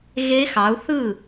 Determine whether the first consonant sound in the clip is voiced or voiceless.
voiced